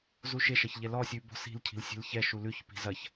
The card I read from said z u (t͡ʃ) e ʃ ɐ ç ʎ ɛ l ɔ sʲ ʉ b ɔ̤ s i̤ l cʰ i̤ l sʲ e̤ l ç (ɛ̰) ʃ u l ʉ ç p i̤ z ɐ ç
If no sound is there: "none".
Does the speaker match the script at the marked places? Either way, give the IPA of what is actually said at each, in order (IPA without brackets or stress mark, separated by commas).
ʃ, ɛ